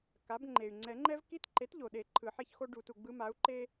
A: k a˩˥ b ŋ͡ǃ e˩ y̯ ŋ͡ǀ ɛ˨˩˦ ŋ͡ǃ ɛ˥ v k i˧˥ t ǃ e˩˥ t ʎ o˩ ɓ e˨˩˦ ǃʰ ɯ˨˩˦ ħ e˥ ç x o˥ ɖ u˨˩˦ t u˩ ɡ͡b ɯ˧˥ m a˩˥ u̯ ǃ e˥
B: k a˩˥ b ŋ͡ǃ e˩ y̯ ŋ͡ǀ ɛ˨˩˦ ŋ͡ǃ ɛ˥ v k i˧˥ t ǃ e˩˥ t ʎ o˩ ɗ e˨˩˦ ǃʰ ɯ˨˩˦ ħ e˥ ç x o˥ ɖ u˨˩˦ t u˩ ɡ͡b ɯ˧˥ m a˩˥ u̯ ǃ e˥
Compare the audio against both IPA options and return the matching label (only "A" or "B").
B